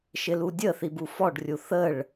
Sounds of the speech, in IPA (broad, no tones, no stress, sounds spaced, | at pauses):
ʃ ɪ l u dʲ ə θ i b u f ɔ ɖ rʲ u θ ə ɭ